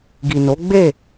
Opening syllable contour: low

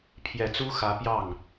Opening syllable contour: low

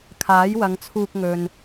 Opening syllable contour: rising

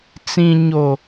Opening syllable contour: low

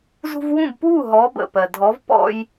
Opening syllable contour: high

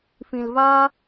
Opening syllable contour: low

